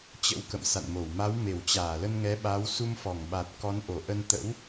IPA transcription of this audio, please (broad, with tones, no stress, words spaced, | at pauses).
t͡ɕə̰˧˥wkə̰˧˨msa̰˧˨nmo˧˩w ma˨˦wme˧˩w t͡ɕaː˧˩lə˧nŋɛ˨˦ ɓa˨˦w su˧mfɔ˧˩ŋɓa˨˩t̚kɔ˨˦n ʔo˧˩ʔə˧n t̪ə̰˧˥w